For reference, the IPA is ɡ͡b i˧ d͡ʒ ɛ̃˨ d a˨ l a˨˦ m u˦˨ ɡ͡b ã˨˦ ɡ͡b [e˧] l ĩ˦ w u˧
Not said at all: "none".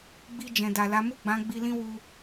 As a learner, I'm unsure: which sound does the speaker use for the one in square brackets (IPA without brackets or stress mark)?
i˧